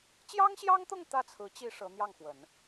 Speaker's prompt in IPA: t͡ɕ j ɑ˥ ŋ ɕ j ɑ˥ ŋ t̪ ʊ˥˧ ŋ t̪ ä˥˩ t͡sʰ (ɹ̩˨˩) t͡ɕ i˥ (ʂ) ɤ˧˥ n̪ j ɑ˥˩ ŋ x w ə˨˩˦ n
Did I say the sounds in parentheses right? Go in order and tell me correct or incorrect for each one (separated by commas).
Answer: incorrect, correct